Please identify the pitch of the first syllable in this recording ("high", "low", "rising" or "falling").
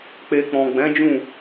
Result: low